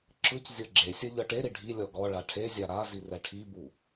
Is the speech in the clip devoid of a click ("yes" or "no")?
no